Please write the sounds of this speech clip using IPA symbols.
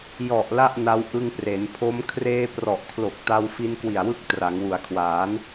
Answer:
jɔ˨˩ʔ la˥˩ʔna˦˥w ʔɯ˧ŋpre˩˦npʰo˦˥m kʰreː˧prɔ˨˩ʔkʰlo˨˩k̚ ta˧w fi˧nkwi˨˩a̯wɯ˦˥k̚ tra˩˦ŋwu˩˦a̯kʰwaː˩˦n

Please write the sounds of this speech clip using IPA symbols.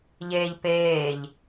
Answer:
ʎeːʎpeːʎ

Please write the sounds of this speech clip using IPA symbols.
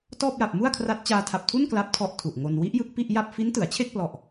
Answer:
tɔː˥˩p̚ja˨˩p̚mu˥˩a̯kʰra˦˥t̚ t͡ɕaː˧tʰa˨˩p̚tʰu˥˩n kla˦˥p̚tʰɔ˦˥ʔ tʰu˨˩ʔŋo˧n wi˦˥ʔjɯ˦˥k̚pi˥˩ʔ ja˥˩p̚ fi˦˥ntɯ˩˦a̯t͡ɕʰe˥˩k̚plɔ˨˩ʔ

